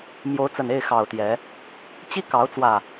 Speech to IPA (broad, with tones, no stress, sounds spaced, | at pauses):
m j o˨˦ ʊ̯ t͡s ə˨˩ n e˥˨ ɪ̯ x ɑ˨˩ ʊ̯ t̪ j ɛ˨˦ | t͡ɕ i˦ k ɑ˨˦ ʊ̯ t͡s w ä˨˩